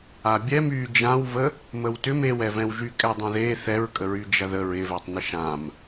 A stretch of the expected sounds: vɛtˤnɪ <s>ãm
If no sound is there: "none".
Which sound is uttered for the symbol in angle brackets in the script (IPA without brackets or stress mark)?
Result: ʃ